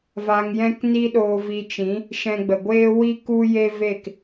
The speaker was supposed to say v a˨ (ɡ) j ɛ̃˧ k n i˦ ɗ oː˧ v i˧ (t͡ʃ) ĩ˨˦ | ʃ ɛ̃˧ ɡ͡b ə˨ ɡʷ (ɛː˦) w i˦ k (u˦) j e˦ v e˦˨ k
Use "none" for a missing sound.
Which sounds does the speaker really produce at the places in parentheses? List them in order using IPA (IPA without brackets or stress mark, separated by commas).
ŋ, t͡ʃ, eː˦, u˦